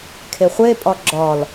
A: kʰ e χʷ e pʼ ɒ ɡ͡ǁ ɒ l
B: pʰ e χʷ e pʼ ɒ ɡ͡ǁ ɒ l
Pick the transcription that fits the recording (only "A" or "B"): A